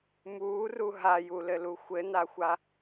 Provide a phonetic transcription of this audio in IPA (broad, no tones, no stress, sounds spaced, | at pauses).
m uː r u ɦ a j u l ɘ l u xʷ ɘ n a xʷ a